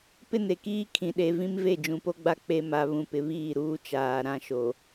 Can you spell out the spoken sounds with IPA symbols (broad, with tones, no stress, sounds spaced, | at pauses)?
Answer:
p ɪ˦ n e˨ k iː˦ kʰ ĩ˨ ɗ e˨ v ĩ˦ m v e˦˨ d͡ʒ ũ˨ p o˦ ɡ͡b a˦ k͡p e˦ m a˦ β ũ˦ p ɪ˦ β iː˦˨ ɾ uː˦ t͡ʃ aː˨ ɾ ã˦ ʃ o˨